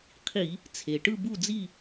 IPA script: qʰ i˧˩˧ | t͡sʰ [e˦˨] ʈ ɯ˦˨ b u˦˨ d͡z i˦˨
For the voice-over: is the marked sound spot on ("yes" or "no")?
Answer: no